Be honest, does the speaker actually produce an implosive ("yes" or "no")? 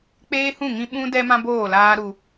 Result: yes